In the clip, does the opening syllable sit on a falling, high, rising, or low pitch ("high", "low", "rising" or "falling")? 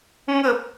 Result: low